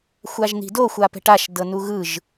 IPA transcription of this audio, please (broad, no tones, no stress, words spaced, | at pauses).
xʷaʒni̤do xʷapɛ̤ʈaʃ dɤnuɣɯʒ